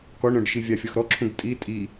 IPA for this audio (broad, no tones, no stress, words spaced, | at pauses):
kɔɳɾœ̃ɖʃi vʲɑfʲɔxɾɔǁʰũɡ tʼi tʼi